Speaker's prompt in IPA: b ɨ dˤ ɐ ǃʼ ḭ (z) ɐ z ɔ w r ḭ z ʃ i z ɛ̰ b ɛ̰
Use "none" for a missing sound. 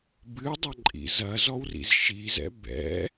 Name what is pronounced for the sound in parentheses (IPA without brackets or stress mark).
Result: z